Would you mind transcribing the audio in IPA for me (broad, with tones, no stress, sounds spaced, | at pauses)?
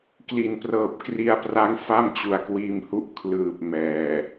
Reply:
k l i˩˦ n p r ɤː˨˩ p̚ k r i˧ a̯ p r a˦˥ ŋ f a˥˩ m t͡ɕ u˨˩ a̯ k w iː˧ m h u˦˥ ʔ kʰ l ɯː˨˩ p̚ m ɛː˨˩